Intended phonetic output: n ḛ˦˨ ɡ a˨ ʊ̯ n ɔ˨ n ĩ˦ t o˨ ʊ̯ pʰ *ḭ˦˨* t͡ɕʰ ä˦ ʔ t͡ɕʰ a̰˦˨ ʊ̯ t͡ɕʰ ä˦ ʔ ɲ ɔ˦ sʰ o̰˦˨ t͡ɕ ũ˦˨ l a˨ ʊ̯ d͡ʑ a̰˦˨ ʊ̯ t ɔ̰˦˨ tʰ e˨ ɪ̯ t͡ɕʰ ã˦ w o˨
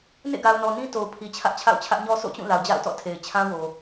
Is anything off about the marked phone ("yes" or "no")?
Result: yes